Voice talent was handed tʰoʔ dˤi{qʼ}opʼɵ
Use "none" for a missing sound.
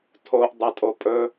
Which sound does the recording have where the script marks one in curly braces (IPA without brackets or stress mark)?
tʼ